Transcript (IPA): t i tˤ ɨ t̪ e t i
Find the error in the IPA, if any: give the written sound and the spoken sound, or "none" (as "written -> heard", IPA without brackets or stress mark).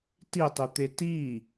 ɨ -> i